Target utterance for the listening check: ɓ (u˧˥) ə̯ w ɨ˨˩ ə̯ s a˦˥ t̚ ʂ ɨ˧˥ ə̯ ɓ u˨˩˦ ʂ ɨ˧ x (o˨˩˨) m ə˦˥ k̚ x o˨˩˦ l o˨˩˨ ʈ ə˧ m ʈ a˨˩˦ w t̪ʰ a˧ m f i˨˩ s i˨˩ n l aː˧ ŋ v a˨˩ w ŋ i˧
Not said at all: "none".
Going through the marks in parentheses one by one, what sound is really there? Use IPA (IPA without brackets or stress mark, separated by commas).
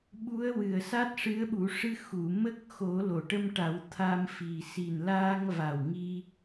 u˧˥, u˨˩˨